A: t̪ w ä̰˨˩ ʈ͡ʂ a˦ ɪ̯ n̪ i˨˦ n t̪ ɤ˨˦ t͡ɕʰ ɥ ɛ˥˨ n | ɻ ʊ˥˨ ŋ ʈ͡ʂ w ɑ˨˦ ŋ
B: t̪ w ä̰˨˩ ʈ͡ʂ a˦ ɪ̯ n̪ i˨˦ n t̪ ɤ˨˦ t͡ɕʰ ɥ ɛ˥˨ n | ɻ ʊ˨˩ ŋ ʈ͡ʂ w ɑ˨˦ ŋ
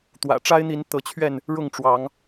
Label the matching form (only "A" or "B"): A